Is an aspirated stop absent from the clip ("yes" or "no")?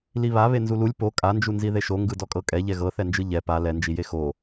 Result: yes